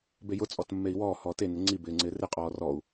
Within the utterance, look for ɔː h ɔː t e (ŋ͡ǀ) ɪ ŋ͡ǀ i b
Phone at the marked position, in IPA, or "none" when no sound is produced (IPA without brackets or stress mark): n